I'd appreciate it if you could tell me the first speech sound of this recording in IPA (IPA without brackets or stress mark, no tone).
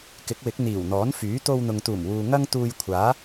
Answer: k